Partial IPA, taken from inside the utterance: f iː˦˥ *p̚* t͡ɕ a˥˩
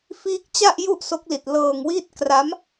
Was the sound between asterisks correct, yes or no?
no